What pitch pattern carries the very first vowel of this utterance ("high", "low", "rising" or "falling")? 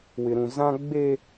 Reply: high